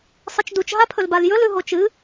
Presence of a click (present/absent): absent